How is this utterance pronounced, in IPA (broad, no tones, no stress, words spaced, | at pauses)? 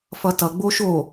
fʌtʌ ɡ͡boʃo